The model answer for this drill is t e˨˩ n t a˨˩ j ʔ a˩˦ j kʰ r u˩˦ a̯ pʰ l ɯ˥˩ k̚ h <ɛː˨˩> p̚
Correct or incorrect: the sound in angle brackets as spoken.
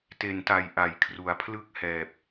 correct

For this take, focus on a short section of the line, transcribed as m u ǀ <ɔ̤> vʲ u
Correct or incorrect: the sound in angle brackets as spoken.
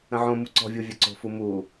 correct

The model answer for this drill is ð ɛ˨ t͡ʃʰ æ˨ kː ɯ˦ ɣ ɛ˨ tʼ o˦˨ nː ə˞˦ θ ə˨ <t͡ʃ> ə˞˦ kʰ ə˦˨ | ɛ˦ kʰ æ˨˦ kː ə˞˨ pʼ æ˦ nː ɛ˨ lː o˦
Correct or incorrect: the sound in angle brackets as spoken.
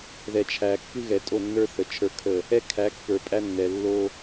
incorrect: t͡ʃʰ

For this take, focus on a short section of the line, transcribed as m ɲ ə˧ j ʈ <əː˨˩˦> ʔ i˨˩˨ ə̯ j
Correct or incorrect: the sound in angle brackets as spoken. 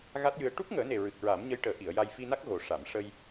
correct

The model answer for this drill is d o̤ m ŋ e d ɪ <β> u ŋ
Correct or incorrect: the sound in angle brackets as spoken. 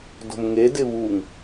correct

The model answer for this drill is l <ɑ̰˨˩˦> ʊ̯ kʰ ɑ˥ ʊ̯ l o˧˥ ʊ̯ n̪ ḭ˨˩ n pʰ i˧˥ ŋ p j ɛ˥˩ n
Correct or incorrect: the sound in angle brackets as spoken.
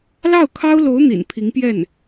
incorrect: ɑ˥˩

